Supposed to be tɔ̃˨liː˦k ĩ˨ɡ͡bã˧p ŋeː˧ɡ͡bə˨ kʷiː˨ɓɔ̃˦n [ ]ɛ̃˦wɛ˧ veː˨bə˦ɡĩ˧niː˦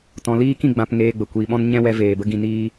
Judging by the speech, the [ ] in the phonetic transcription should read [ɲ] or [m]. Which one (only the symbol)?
ɲ